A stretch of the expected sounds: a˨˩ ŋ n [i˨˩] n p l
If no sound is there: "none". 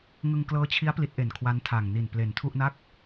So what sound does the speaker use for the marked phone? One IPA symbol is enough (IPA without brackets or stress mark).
i˨˩